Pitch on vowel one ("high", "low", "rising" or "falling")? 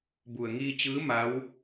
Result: low